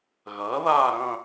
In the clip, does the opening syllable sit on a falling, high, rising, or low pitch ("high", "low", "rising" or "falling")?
rising